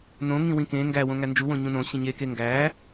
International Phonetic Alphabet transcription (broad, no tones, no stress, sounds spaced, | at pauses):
n õ ŋ ĩ w ĩ k ẽ ŋ ɡ æ w õ ŋ æ n d͡ʒ u w õ ɲ ũ n õ ɕ ĩ ɲ e k e ŋ ɡ æ